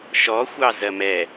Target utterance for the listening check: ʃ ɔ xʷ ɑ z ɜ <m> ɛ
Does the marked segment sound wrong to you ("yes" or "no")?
no